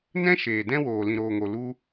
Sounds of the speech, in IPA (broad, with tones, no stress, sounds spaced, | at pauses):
n ɛ̃˦ ʃ eː˨ d ɛ̃˦ w oː˨ l ĩ˨ ɾ oː˨ ŋ o˨ l u˧